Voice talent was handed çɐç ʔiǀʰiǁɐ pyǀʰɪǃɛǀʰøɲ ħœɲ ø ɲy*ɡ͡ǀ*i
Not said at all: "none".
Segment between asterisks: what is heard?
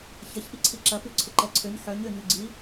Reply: ɡ͡ǀ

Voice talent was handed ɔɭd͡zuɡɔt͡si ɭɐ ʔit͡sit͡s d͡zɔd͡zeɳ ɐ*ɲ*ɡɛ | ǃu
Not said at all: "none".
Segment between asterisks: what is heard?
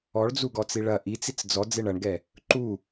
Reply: ɳ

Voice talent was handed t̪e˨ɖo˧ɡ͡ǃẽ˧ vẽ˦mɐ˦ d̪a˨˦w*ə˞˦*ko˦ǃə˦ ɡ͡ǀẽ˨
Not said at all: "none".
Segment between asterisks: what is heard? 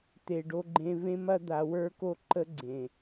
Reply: ə˞˦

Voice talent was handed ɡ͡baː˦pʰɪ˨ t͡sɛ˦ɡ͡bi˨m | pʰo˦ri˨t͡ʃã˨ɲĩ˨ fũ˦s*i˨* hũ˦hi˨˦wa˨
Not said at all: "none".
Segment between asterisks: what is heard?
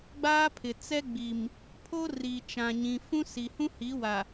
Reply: i˨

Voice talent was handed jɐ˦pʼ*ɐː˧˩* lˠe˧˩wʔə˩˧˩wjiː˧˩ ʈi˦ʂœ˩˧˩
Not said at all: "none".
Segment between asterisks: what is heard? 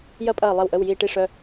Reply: ɐː˧˩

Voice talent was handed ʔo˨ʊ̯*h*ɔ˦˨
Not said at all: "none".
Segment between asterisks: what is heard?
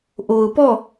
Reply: p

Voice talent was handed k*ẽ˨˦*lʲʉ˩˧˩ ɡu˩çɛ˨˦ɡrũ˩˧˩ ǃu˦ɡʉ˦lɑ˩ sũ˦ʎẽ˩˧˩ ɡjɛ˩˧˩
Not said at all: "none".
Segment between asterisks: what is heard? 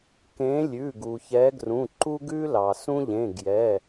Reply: ẽ˨˦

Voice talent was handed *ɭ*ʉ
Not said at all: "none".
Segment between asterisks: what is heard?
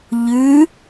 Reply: ʎ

